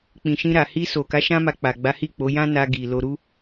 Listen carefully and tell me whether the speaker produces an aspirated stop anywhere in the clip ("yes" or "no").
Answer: no